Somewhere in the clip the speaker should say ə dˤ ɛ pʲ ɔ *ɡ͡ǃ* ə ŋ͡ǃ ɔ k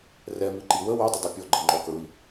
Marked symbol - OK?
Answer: yes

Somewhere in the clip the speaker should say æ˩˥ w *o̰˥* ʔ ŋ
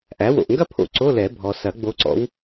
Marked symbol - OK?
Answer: no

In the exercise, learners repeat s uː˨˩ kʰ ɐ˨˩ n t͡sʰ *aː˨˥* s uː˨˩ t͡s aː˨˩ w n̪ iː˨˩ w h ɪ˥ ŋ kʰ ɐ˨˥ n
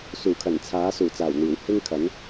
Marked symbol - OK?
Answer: yes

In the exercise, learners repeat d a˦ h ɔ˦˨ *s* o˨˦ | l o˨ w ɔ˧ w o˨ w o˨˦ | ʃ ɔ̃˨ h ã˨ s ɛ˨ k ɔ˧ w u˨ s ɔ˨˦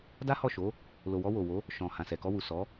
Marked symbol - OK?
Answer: no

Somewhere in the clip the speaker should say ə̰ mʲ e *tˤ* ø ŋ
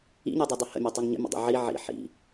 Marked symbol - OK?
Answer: yes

